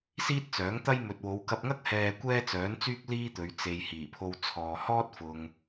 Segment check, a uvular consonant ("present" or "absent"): absent